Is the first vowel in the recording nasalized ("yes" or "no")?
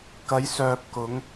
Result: no